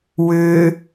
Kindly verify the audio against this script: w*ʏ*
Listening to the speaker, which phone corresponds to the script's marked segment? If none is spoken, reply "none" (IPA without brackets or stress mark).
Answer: ʏ